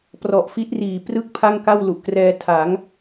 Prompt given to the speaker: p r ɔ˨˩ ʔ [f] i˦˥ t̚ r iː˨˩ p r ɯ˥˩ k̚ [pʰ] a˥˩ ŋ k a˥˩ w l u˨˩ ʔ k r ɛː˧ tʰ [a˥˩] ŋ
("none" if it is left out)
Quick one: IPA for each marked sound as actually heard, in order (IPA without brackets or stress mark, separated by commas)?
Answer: f, pʰ, a˩˦